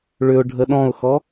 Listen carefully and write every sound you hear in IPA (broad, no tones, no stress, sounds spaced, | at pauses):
ɭ ʏ ʊ̯ ɖʱ ə ɗ ɔ̃ ʊ̯ x ɔ